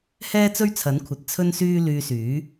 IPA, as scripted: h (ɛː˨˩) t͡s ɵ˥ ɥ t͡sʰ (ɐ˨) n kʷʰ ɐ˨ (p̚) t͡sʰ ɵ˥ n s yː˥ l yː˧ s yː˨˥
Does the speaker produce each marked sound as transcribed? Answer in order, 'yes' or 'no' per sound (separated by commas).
no, no, no